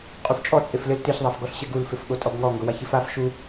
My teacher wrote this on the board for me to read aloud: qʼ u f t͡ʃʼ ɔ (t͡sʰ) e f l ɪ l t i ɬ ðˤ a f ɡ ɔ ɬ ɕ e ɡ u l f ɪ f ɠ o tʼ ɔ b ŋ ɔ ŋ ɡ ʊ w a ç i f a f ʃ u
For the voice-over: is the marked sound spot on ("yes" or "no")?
no